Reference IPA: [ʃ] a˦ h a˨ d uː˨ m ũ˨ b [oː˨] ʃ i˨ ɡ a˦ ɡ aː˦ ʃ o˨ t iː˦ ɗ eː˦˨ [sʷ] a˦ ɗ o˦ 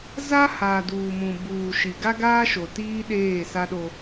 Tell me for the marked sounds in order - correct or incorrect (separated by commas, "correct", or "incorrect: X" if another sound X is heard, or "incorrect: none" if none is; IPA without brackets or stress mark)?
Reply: incorrect: z, incorrect: uː˨, incorrect: s